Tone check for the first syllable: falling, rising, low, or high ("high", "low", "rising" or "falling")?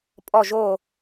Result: falling